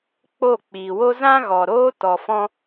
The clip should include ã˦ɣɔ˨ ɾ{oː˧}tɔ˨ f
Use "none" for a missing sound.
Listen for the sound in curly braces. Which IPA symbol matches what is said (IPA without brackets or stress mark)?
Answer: oː˧